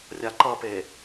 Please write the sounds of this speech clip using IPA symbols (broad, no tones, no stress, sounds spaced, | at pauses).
rʲ a ǃ ʌ p e